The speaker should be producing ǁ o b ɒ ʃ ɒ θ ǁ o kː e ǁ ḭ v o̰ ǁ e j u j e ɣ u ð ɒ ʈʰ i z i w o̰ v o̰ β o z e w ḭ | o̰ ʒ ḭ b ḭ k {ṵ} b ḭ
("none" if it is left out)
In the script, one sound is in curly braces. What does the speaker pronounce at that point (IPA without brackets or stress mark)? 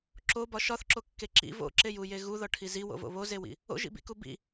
u